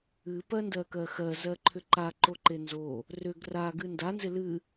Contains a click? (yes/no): yes